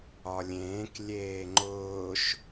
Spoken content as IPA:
ɒlʲẽːk lʲeːŋ͡ǃʊːʃ

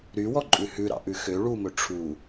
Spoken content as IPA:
ɾywɔǃʼʉ hʉɾɑ̰ʔʉ xø ɭumɵ ʈ͡ʂʰu

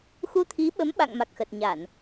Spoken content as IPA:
xu˧t̪ʰi˨˦ɓə˨˦m ɓa̰˧˨ŋ ma˨˩k̚xə˨˩t̚ ɲa˧˩˨n

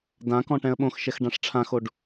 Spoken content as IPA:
dã kɔ̃ʈɛ̃ə̯ɓõxʃɛx ɖãʂʈ͡ʂʰãxoɖ

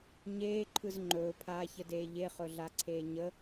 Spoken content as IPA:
ɲeːǃʰɯz ŋ͡ǃɵːpʰaːçədeː ʎeχɵɮaǀʰeː ɲə

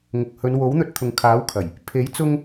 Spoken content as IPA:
ŋʊ˨k̚hɵ˨˧n wo˨˥wn̪ɵ˧t̚ t̪ʰʊ˨ŋ kʰaː˨˥wkʰɐ˨˩j | pʰe˨˥j t͡sʊ˥ŋ

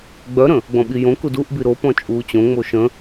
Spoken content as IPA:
ɡ͡bœɾə̃ | ɡ͡bɔ̃ɓijõkud uʔbi ɾopɔ̃ t͡ʃʼuːt͡ɕõŋ͡mo ʃə̃

